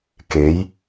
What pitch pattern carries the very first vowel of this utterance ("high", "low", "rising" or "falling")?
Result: rising